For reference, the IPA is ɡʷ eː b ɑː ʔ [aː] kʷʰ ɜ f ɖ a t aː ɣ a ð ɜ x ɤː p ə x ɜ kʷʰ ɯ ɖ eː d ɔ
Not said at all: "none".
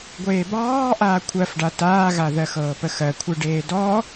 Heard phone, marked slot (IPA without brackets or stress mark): aː